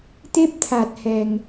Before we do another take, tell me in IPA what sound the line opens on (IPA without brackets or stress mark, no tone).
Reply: t̪